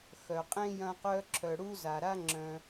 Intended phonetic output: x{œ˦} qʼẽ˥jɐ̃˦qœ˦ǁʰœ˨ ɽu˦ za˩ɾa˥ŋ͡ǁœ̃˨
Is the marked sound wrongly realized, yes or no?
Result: yes